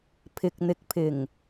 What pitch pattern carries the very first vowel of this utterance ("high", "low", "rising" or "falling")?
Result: low